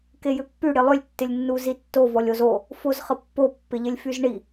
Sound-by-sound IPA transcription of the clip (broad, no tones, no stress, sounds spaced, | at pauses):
k e j ʏ pː y ɽ ɪ lˠ ʏ lʲ tː ɪ lʲ nː u z i tː o v ɔ lʲ o z o | f o z χ ə pː o pː ɪ ʎ ɪ lʲ f y z ɳ i